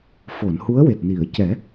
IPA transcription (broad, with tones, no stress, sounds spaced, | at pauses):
f o˨˩˨ n h u˧˥ ə̯ w e˨˩ t̚ n i˨˩˨ ə̯ c ɛ˨˩˦